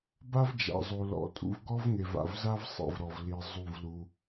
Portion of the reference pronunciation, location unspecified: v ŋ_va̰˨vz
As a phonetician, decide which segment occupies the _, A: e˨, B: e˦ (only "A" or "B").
A